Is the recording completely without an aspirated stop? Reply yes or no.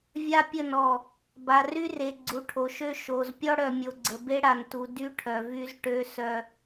no